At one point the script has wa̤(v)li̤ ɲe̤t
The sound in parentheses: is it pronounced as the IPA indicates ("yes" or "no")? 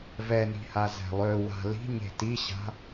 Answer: no